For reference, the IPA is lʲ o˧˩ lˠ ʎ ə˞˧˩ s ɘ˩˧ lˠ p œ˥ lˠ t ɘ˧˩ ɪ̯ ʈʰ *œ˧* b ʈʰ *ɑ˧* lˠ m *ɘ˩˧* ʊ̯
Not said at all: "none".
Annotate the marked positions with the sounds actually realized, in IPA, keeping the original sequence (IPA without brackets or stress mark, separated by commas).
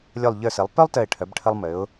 œ˩˧, ə˧, ɘ˩˧